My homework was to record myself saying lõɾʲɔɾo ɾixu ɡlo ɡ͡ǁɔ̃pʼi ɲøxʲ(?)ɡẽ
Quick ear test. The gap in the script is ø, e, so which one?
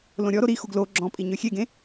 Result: e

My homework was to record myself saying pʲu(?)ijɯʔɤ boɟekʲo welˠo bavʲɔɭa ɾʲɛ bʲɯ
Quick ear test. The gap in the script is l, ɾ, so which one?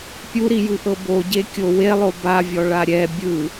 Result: ɾ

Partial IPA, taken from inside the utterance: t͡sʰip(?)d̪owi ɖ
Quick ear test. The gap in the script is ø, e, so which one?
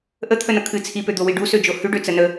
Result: ø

